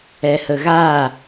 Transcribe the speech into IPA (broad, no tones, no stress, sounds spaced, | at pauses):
ɛ h ə ɣ a